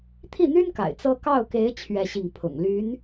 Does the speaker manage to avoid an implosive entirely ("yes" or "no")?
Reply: yes